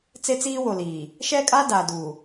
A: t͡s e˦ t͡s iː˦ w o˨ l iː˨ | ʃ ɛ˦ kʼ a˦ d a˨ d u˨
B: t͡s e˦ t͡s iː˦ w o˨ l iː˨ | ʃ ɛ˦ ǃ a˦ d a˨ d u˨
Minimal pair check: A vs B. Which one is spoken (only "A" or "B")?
A